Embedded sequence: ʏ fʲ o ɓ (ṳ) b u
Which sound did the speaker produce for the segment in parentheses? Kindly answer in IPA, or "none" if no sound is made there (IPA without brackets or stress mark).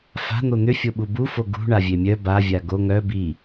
u